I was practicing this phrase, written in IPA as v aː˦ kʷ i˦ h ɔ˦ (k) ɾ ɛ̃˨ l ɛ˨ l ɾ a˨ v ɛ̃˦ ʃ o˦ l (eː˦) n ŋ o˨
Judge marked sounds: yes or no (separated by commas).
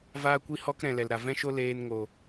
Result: yes, no